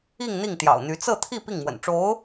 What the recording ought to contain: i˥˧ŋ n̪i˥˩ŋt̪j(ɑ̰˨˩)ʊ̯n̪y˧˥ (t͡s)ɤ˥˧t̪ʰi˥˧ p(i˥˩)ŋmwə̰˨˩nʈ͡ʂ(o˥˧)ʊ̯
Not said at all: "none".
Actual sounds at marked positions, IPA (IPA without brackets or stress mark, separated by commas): ɑ̰˨˩, t͡s, i˥˩, o˧˥